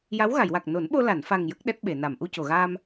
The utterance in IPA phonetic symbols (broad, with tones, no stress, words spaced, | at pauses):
ja˧˥wɣa˨˩˨jwa˨˩k̚ no˨˩˦nɓo˧la˨˩˨nfa˨˩ŋ jə˦˥k̚ ɗɛ˦˥t̚ɓe˨˩˨ na˨˩˨mʔu˧co˨˩˨ɣaː˧m